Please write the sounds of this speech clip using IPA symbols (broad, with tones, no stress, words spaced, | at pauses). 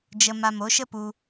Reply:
d͡ʒə˧ ma˧mo˨˦ ʃə˦pu˧